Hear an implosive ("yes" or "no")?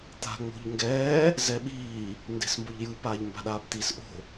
yes